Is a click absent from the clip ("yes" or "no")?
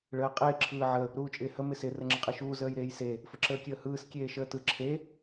no